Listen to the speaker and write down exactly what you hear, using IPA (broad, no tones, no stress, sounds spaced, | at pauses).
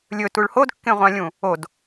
lʲ ɵ t u ɭ h o d kː ẽ ʁʷ ã lʲ ũ | o d